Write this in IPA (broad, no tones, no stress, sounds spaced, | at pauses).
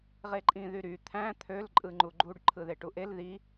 ʁ e ǃʼ ĩ ð y ɾ y t̪ʰ æ̃ t̪ʰ ø l ǃʼ ɯ ŋ͡ǃ u ɡ͡ǃ u ɖ ǃʰ ɯ ð e ʈ u ʔ e l ð i